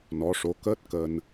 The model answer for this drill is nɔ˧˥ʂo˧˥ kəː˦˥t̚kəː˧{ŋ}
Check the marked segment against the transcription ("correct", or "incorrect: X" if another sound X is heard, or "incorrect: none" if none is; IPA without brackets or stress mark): incorrect: n